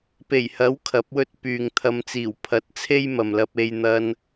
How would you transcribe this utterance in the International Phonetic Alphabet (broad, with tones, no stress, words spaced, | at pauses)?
pe˨˩jhɐ˨˥w kʰɐ˨˥p̚wɵ˥t̚pyː˨ŋt̪ʰɐ˧m t͡siː˨˩wpʰɐ˨t̚t͡sʰe˥j mɐ˨mlɐ˧p̚e˧j n̪ɐ˧n